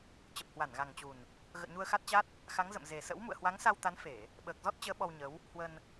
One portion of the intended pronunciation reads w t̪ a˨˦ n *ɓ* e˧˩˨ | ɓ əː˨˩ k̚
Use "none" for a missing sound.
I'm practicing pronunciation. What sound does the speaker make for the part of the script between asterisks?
f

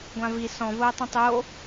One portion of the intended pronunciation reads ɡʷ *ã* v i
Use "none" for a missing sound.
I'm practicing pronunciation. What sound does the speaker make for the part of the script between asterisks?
ã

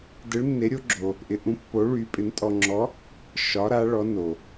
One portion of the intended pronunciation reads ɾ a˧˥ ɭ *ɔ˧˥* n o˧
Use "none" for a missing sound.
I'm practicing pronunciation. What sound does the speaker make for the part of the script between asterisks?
ɔ˧˥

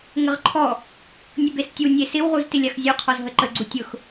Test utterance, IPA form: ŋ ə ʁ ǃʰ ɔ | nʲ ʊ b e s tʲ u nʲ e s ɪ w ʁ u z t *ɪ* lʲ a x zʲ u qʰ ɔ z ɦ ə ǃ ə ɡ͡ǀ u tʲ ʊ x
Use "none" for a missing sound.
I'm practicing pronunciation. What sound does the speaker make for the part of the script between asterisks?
ɪ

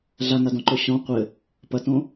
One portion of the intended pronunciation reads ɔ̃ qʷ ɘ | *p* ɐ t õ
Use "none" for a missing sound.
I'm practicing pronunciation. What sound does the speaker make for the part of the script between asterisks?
p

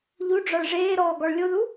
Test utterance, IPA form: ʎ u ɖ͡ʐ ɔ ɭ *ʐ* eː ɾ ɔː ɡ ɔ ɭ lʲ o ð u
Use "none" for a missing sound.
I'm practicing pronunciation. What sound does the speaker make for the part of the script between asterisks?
ʐ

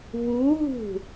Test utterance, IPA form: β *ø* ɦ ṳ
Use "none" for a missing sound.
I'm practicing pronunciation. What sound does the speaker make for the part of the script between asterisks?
u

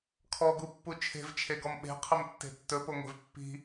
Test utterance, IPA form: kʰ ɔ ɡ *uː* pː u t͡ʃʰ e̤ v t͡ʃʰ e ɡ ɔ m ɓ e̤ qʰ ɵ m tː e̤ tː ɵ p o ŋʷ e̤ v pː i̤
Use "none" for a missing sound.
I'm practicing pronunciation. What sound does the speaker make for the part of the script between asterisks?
u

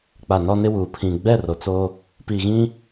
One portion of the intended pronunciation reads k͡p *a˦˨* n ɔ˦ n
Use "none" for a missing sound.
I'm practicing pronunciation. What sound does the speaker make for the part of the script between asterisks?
a˨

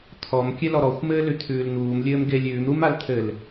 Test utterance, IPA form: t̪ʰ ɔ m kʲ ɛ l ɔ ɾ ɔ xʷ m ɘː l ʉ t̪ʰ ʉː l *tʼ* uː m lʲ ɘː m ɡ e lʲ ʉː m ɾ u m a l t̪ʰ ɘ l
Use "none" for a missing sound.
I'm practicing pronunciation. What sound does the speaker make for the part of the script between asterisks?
n̪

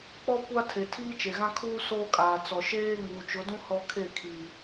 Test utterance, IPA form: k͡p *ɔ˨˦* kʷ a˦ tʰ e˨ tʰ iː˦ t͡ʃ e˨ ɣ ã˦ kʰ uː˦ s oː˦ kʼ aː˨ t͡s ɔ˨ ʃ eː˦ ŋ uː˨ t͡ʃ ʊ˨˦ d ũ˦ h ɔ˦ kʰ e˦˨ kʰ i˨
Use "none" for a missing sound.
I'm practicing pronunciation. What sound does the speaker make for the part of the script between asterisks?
ɔ˦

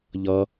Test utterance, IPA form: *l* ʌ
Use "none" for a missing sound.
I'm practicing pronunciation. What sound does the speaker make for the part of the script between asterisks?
ʎ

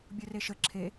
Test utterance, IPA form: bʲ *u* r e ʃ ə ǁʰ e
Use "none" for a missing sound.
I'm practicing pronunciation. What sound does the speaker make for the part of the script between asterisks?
o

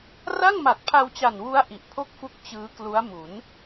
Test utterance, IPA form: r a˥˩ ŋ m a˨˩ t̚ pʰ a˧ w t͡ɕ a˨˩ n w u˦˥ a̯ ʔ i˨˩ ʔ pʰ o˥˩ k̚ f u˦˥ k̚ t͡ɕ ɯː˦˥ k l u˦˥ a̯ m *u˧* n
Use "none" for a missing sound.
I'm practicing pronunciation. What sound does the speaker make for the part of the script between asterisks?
u˩˦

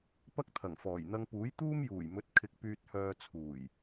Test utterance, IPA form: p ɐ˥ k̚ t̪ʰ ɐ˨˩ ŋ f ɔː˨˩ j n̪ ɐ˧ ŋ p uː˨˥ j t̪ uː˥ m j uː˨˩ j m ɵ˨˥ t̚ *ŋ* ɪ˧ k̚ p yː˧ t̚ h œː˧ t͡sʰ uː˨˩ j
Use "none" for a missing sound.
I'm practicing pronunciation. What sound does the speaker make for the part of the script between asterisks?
kʰ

